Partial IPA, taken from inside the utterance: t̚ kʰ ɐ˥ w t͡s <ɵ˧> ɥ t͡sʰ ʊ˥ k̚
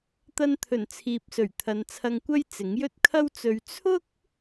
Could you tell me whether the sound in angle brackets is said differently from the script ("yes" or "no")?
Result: no